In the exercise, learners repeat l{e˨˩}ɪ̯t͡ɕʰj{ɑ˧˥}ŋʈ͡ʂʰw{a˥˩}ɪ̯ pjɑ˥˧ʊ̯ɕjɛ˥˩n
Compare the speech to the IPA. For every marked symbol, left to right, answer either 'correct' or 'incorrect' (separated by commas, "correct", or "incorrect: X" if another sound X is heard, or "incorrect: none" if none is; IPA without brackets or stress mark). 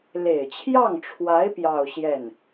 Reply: correct, incorrect: ɑ˥˩, incorrect: a˧˥